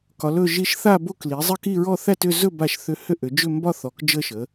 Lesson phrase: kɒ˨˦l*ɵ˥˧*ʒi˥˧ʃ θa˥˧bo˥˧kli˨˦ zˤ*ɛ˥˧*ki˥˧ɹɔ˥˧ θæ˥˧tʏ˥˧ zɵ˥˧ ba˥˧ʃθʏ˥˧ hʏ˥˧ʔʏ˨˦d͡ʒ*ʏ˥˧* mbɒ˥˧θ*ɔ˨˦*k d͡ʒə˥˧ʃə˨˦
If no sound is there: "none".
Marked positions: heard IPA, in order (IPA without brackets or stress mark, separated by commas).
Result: ɵ˥˧, ə˥˧, ʏ˥˧, ɔ˨˦